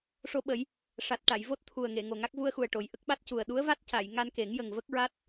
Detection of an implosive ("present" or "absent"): present